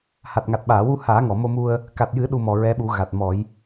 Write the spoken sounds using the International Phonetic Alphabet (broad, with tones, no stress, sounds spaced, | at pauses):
h a˨˩ t̚ ŋ a˨˩ t̚ ɓ aː˨˩˨ w u˧ h aː˨˩˦ ŋ ɔ˨˩˨ m o˧ m u˧ ə̯ | k a˨˩ t̚ j ɨ˨˩˦ ɗ u˧ m ɔ˨˩ ɹ ɛ˧˥ ɓ u˨˩˦ ɣ a˨˩ t̚ m ɔ˨˩˦ j